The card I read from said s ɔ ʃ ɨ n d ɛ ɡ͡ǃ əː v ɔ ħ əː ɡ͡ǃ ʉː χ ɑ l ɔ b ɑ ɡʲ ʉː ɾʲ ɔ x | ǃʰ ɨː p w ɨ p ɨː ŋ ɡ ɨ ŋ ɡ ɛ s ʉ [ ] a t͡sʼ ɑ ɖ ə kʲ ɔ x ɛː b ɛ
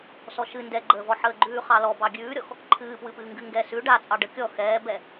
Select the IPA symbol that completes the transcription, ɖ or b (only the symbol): ɖ